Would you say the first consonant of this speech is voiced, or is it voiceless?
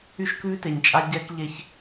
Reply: voiceless